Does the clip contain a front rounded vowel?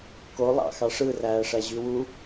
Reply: yes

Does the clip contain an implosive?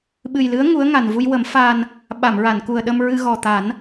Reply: yes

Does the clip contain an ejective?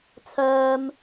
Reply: no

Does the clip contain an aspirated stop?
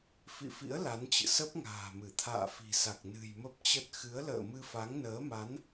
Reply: yes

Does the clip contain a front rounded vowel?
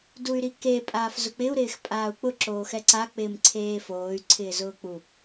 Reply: yes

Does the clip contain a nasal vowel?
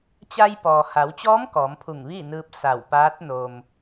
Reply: no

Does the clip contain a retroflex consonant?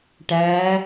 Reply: yes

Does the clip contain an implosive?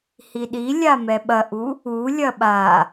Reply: yes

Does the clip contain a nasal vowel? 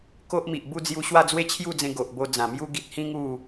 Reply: yes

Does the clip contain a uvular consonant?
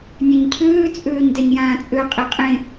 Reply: yes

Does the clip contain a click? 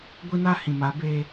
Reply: no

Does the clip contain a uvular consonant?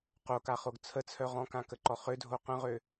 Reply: yes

